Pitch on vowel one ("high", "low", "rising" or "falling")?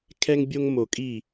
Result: high